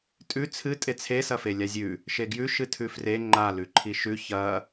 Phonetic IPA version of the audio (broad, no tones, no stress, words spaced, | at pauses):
tʼʉ t͡sʰɨ tʼet͡sʰe sɐfelʲazʲʉ | ʃeɡjʉ ʃɨtʰʉfre ŋ͡ǃa lʉǃʰiʃʉ çɐ